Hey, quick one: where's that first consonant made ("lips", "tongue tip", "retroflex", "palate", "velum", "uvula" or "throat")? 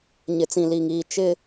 palate